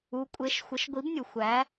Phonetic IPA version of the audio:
u˨˦ kʷʼ e˨˦ ʃ xʷ ə˨˦ ʃ ɡʷ i˨˦ b nʲ u˩ xʷ æ˨˦

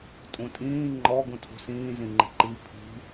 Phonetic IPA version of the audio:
tʼ ũ tʼ ĩː ŋ͡ǃ ɔ ɡ ũ tʰ ṳ s ĩː z ĩ ŋ͡ǃ i̤ ǃ i pʰ i̤

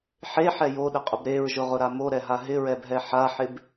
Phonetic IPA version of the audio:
ħ e ħ ɛ j o ɗ ɪ qʼ ʊ b ɾ e ɹ ʒ ʊ ʁ ʊ ɾ a m o ɾ ɛ ɦ a ɦ ɪ ɹ ɛ b ɦ ɛ ħ a ħ ɪ b

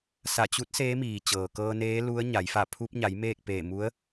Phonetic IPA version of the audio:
s a˧˩ t͡ɕ u˧˥ t̚ s eː˧˥ m iː˩ t͡ɕ ɤː˩ k ɤː˧ n eː˧˥ l u˧˥ ə̯ ɲ a˩˧ j f a˧˩ pʰ u˧ p̚ ɲ a˩˧ j m eː˥˨ k̚ p eː˧˩ m u˧˥ ə̯

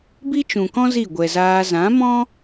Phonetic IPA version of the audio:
b i˦ t͡ʃ ũ˨ k ɔ̃˦ z i˦˨ ɡʷ ɛ˨ z aː˧ z ã˨˦ m ɔ̃˦

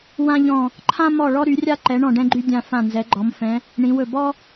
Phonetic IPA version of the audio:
w ã˥ ʎ ɔ̃˦˨ | ǃʰ ã˥ m ɔ˦˨ ɭ ɔ˥ ɾ y˨˦ rʲ a˥ ǃ ɛ˨˦ ɳ ɔ̃˦˨ ɖ ɛ̃˥ ɡ͡ǃ y˥ dʲ ã˦˨ f ã˦˨ n z ɛ˨˦ ɡ͡ǃ ɔ˨˦ m f ɛ̃˨˦ | ɳ ĩ˨˦ w ɵ˦˨ b ɔ˥

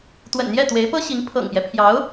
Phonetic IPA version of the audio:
t̪ w ə̰˨˩ n n̪ j ɛ˥˩ t̪ w e˧˥ ɪ̯ p ɤ˥ ɕ i˧˥ ŋ pʰ ɤ̰˨˩ ŋ p j ɛ˦ pʰ j ɑ˧˥ ʊ̯

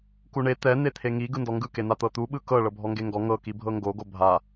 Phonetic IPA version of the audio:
k u ɳ e t̪ ɛ n̪ e t̪ʰ e ŋ i ɡ ɯ n d ɔ ŋ ɡ ɯ k e n̪ a t̪ ɤ t̪ u ɓ ɯ k ɤ ɭ ɤ bʱ ɔ ŋ ɡ e ŋ ɡ ɔ ŋ ɤ k i bʱ ɤ ŋ ɡ o ɡ o bʱ a

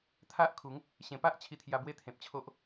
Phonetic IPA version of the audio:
t̪ʰ a˦ ʔ kʰ u˨˦ ŋ | ɕ ẽ˨˩ p a˦ ʔ t͡ɕʰ i˧ t̪ʰ j a˧ b w e˥˧ t̪ʰ ẽ˨ p̚ t͡ɕʰ o˦ ʔ

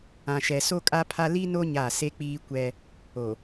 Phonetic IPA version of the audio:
ã˨ ʃ ɛ˨ s o˦ kʼ a˦ pʰ a˦ l i˦ n o˦ ɲ a˦˨ s e˦ k͡p iː˦ kʷ ɛ˦ | o˨

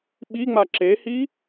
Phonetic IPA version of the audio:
ɓ i ŋ͡m a ǁ e h i

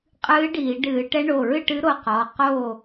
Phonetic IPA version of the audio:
qʼ ɨː˧˥ ɖ iː˧˩˧ ɖ ɨː˧˩˧ ʈ ɛ˧˥ ɳ o˩˧˩ ɹ ɨ˥˨ ʈ ɨ˧˥ ɾ o˧ q ɔ˩˧˩ q o˥˨

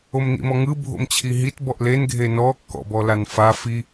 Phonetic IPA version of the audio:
o m n ḭ m ɔ ŋ ɯ bʱ o̰ m t͡ɕʰ i ɦ i t b ɔ ʔ l e n ɡʱ e n ɔ kː ɔ̰ b ɔ l a n f a f i

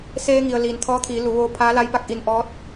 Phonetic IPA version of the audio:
s eː˧ ŋ i˩ ə̯ l iː˩ n t̪ʰ ɔː˧˥ t̪ʰ iː˩˧ l u˩˧ ʋ oː˧ pʰ aː˧˥ l a˧˥ j p a˧˩ k̚ ʔ i˧˩ n ʔ ɔː˧˥ t̚

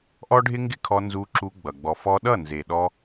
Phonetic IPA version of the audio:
ʔ ɔ˦ ɖʱ ɪ˦ ŋ ɡ ɪ˦ kʰ ɔ˧ n z u˧ ǁ u˧ ɡ͡b ʌ˨ ɡ͡b ɔ˨ f ɔ˧ ɗ ʌ˦˨ n z e˨ ɗ ɔ˧

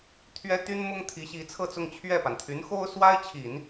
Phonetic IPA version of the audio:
t̪ʰ ɥ ɛ˥ t̪ y˥ n m ʊ˥ ŋ t̪ʰ i˧˥ ɕ i˧˥ t͡sʰ ɤ˥˧ t͡s ʊ˥˧ ŋ t͡ɕʰ ɥ ɛ˥˩ p a˩ n t̪ʰ y˧˥ n x o˥ ʊ̯ s w a˥ ɪ̯ t͡ɕʰ i˨˩˦ n

